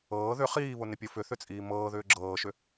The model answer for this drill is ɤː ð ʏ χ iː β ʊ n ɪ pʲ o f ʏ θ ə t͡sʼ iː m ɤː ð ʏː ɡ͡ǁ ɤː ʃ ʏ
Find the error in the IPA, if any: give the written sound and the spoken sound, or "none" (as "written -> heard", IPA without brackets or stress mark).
ə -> ʏ